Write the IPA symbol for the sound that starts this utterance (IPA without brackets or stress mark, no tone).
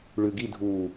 ɭ